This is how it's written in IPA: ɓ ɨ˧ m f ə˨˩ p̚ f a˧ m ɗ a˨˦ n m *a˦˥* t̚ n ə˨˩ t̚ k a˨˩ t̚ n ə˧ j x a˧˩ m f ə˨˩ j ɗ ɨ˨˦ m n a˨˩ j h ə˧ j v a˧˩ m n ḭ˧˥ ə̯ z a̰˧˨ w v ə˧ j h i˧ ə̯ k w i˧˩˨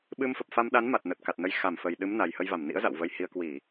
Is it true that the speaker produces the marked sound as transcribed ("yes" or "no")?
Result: no